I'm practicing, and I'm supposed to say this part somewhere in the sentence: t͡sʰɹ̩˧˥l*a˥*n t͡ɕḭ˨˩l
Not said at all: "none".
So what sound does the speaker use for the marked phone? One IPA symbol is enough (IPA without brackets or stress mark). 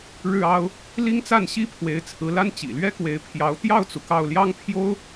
a˥